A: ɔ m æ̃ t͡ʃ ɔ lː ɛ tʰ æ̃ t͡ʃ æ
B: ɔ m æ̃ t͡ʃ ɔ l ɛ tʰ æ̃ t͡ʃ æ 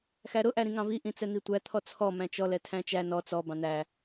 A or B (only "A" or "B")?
B